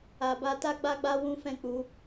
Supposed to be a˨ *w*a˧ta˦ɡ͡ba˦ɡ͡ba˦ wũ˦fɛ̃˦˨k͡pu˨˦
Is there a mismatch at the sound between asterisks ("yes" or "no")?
yes